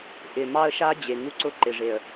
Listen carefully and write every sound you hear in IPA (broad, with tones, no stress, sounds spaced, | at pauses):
ʔ ɪ˨ m ɑ˦ ə̯ ʃ a˦ d͡ʑ e˨ ŋ u˦ ǀ ʊ˦ ǃ ɪ˨ ʐ e˨ ə̯